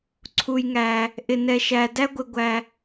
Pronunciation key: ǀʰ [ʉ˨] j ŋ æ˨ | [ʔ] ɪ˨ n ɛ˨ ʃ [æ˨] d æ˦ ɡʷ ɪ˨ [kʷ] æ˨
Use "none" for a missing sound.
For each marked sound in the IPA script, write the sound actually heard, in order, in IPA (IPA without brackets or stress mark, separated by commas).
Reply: u˨, ʔ, æ˨, ɡʷ